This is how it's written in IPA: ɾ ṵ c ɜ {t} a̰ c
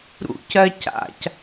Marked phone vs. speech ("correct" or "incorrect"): incorrect